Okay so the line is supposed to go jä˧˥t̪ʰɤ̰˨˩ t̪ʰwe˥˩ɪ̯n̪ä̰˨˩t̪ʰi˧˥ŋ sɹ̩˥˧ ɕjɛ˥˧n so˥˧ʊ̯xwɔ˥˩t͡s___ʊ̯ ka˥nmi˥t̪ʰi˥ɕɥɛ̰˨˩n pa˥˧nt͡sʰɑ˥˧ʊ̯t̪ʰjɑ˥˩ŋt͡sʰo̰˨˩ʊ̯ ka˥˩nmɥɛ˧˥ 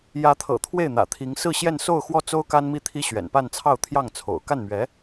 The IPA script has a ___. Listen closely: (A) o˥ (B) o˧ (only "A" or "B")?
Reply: A